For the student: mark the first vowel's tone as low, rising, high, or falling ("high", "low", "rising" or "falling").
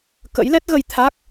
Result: rising